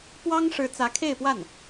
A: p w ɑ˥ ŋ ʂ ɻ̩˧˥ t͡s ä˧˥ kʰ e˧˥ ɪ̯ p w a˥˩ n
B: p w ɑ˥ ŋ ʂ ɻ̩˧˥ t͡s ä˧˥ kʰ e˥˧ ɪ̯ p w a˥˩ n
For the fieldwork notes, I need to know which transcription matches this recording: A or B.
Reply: B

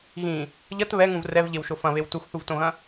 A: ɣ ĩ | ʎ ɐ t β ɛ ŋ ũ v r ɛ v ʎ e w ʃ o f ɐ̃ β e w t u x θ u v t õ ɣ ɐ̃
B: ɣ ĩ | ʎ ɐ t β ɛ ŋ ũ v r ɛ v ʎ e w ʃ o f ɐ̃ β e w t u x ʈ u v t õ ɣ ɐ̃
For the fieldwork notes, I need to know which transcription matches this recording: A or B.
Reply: A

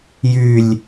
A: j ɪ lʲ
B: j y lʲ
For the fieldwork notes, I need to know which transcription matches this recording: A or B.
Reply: B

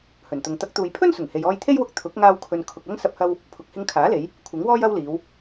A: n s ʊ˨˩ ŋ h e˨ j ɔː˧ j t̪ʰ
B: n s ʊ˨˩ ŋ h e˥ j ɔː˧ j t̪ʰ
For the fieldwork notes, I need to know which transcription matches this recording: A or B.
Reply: A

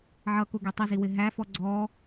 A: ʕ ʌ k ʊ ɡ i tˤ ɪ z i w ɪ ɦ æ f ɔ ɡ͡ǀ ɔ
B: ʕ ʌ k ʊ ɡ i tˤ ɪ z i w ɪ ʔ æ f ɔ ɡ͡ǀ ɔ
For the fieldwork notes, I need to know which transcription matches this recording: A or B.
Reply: A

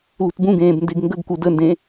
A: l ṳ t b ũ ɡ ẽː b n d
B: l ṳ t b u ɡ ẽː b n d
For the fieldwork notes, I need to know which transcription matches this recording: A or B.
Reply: A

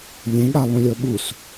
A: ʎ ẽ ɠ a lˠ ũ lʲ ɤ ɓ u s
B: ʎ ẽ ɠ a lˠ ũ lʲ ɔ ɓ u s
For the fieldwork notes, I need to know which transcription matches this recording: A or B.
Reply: A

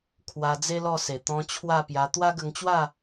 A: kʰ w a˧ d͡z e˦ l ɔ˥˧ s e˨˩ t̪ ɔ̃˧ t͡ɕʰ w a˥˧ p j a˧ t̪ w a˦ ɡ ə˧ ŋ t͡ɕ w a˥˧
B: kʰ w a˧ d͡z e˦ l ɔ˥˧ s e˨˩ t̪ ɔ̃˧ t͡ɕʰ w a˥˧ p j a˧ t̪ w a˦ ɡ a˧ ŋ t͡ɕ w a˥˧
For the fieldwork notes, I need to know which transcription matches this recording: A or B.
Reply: A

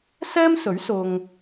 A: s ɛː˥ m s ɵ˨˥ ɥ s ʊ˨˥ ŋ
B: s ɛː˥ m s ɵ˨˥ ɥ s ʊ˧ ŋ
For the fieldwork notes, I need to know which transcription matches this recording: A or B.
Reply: B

